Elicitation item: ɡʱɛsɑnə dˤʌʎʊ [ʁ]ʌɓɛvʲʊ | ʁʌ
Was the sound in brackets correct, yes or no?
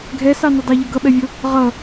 no